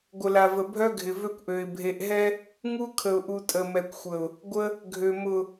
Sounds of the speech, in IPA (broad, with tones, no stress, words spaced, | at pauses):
ɡʷə˨la˨və˨ bʱœ˦ɡʱɪ˨ vø˦kʷʔø˨ɪ̯ bʱe˨ʔɦɛ˦ | ŋu˦kʰə˨ʊ̯ʔu˨ tʼə˨mɛ˨kʷxʷə˨ʊ̯ | ɡʷə˦ | ɡʱø˨mʊ˨